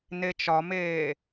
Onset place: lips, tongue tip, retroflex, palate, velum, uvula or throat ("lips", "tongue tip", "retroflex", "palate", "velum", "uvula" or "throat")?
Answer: tongue tip